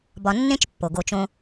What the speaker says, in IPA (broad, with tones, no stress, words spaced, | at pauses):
bɒ˧nːẽ˦t͡ʃpːo˨ ɡo˧t͡ʃõ˦